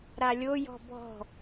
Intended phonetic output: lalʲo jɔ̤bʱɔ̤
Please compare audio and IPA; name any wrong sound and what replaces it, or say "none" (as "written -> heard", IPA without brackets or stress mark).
l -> ɾ